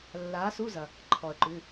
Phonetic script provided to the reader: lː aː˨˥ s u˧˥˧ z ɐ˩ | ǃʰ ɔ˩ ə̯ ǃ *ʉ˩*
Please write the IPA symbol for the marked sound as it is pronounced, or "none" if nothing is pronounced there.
ʉ˩˧˩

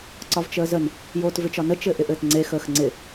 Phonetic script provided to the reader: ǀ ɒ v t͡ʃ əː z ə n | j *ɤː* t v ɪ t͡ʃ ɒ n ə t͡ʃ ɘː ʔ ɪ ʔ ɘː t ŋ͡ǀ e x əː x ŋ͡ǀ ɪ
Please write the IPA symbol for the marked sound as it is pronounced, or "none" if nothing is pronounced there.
oː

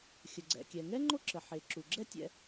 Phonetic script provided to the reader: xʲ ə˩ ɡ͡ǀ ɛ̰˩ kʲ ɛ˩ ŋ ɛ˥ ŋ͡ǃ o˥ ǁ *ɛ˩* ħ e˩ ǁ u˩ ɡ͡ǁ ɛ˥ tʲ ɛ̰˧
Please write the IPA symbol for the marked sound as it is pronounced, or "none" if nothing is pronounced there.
ə˩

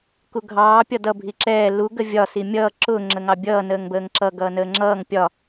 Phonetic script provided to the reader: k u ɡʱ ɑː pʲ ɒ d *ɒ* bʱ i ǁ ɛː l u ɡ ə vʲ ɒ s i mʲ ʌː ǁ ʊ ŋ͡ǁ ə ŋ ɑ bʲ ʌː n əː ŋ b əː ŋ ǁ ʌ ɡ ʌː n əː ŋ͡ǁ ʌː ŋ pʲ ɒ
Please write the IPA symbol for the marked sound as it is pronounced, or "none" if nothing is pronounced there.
ʌ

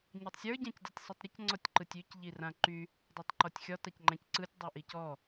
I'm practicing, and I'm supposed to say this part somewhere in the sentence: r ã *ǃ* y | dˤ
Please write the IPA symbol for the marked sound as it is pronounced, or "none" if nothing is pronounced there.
ǃ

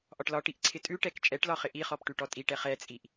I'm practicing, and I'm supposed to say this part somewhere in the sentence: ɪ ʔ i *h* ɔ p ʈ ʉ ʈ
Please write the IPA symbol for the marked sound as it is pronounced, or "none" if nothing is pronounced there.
χ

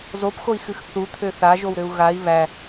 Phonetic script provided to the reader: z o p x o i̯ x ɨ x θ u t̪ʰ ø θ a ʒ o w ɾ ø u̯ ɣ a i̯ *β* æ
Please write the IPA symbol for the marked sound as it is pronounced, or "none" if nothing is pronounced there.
β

